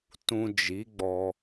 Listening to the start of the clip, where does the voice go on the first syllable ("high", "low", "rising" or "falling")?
low